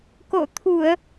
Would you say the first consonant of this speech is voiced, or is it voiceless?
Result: voiceless